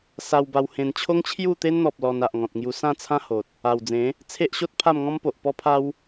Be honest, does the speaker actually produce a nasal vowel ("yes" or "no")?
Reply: yes